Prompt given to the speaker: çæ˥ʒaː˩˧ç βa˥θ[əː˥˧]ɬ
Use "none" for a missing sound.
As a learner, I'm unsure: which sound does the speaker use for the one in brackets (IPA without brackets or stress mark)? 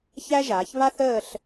əː˥˧